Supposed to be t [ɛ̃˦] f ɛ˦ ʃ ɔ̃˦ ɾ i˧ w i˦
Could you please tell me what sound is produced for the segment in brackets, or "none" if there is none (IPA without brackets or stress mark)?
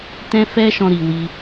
ɛ̃˦